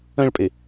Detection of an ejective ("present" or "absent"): present